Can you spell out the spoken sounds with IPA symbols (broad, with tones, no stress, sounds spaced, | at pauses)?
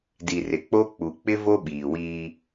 d i˨ r ɪ˨ k͡p o˦ k͡p u˨ k͡p ɪ˦ v o˦ ɓ iː˨ w iː˦